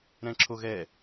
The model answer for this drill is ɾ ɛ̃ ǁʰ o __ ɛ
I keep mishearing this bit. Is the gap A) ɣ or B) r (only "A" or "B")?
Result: A